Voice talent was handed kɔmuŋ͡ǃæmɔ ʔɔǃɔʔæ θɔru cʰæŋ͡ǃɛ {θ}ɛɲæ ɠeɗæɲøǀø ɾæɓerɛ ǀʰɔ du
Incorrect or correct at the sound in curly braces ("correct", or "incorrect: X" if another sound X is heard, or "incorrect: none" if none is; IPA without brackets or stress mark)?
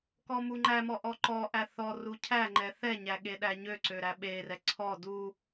correct